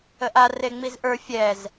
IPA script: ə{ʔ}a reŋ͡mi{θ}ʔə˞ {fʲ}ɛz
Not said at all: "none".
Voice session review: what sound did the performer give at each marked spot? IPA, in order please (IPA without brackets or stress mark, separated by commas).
ʔ, z, fʲ